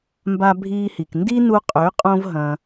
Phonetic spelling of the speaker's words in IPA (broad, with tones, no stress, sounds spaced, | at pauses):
m b a˦ bʱ iː˦ h i˨ k n d i˦ n u˧ qʼ ø˨˦ qʼ õ˦ v ɦ ɐ̃˧